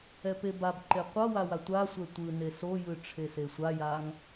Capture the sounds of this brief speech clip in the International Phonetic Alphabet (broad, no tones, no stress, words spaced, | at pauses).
ɛpebabǃe qʷʌ wawatʷasʷɛ tʷɯ nesojɯ ʈ͡ʂʰesesʷajaŋ